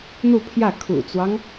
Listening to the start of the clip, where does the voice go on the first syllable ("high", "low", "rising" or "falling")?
falling